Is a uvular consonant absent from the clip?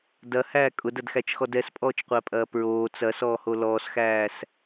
no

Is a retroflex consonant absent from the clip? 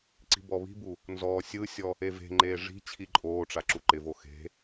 no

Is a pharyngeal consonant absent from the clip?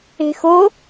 yes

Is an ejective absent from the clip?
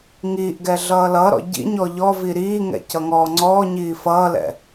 yes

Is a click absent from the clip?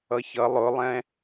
yes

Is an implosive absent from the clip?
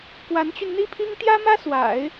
yes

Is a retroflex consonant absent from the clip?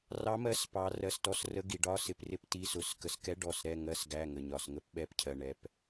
no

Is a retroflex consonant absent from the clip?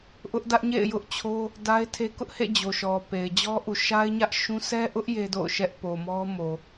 yes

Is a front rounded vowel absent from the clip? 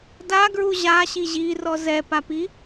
yes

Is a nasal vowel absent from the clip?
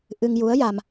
yes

